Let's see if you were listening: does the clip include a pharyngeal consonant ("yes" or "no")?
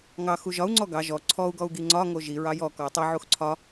yes